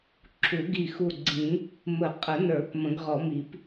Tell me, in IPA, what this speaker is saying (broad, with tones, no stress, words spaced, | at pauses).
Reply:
ǁʰu˨˩˦ɡi˧˩xu˧˩ ɡ͡ǀĩ˨˩˦ | mə˨˩˦qʼə˨˩˦nə˞˨˩˦p mə̃˨˩˦ɡ ʁɔ˨˩˦mi˨˩˦p